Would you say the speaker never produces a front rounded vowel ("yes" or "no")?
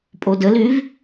no